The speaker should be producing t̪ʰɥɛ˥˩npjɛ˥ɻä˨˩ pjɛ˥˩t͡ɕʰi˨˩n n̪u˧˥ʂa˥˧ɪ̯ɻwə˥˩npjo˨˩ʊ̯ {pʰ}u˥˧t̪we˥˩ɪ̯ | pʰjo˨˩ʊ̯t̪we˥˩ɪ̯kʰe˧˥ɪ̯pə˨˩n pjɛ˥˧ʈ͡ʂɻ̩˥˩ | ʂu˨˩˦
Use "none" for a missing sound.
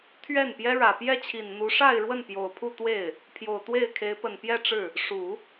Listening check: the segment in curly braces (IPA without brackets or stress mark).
pʰ